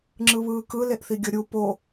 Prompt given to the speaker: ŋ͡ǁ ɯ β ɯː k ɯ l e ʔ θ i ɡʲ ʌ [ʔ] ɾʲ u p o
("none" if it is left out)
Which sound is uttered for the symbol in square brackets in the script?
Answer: none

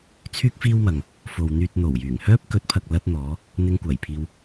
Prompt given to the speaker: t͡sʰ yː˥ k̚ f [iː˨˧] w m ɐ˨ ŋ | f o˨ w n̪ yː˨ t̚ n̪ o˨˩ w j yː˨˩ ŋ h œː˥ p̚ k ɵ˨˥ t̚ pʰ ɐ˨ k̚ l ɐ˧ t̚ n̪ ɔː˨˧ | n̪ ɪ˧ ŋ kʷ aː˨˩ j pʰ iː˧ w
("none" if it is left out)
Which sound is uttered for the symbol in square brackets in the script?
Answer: iː˥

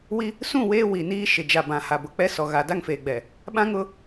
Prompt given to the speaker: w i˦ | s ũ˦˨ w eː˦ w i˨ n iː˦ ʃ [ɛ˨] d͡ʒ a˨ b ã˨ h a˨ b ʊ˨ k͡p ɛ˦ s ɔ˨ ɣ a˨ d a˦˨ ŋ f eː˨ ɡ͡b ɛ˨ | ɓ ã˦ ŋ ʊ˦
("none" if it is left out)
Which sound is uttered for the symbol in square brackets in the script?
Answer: ɪ˨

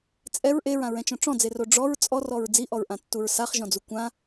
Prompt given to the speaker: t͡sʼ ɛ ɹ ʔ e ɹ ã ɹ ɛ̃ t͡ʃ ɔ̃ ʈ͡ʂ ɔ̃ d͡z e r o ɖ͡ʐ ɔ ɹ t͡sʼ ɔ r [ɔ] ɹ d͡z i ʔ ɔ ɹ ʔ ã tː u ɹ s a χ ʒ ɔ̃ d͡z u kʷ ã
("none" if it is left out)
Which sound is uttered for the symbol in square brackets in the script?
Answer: ɔ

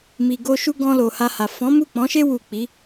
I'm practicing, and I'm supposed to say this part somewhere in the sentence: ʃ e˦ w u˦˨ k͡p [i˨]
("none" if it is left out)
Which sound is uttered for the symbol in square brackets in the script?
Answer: i˨˦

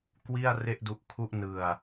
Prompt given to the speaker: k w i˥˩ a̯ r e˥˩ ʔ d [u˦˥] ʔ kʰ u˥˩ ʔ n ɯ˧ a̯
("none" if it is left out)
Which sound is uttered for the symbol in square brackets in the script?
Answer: u˦˥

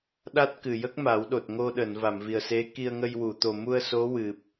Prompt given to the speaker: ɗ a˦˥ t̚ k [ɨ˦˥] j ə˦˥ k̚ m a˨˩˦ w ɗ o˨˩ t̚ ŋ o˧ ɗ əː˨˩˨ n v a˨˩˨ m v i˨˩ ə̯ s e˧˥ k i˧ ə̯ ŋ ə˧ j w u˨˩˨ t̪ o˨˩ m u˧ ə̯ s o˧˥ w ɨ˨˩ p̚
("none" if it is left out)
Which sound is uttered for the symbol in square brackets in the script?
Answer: ɨ˨˩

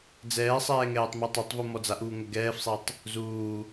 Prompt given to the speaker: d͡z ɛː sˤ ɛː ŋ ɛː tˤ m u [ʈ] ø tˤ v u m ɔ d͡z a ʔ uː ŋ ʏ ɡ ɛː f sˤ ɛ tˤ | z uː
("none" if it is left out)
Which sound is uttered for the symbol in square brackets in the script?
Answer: tˤ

